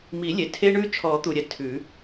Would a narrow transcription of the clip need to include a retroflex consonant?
yes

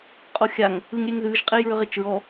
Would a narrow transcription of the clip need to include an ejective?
yes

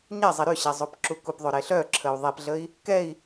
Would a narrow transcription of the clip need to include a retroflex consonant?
no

